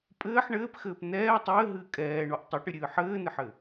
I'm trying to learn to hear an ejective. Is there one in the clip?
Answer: yes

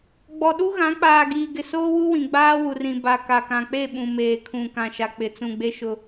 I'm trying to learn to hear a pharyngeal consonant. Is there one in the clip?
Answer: no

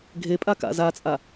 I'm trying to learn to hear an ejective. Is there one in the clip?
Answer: yes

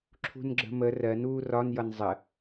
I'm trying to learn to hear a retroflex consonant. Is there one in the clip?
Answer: no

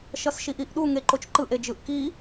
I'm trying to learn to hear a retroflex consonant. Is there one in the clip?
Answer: no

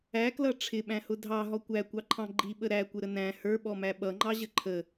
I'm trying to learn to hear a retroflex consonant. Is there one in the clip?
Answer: yes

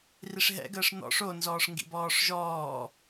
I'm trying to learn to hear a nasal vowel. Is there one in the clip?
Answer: no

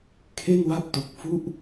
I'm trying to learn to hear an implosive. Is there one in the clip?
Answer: no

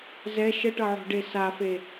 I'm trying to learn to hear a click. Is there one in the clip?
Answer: no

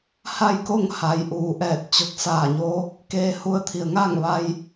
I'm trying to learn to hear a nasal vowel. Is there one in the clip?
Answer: no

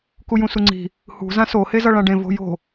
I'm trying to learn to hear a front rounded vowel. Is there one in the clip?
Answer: no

